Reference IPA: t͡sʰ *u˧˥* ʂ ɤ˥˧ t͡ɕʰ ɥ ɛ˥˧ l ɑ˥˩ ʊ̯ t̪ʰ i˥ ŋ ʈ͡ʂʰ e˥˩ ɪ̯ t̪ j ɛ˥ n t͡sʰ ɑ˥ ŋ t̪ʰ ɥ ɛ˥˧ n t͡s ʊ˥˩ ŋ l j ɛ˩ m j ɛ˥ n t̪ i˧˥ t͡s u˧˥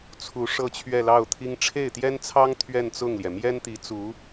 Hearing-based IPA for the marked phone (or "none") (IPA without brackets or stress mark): u˧˥